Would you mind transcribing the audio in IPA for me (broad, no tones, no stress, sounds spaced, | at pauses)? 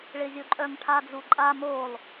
ɭ ɪ zʲ o ǃʼ œ ŋ ʈʰ a d͡z u ǃʼ a m o lˠ